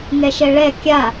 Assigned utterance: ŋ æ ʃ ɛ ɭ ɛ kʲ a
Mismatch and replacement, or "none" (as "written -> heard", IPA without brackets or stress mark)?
æ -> ɛ